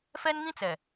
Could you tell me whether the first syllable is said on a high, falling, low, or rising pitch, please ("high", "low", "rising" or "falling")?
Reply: high